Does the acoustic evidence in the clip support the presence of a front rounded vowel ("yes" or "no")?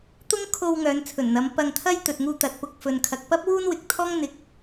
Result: yes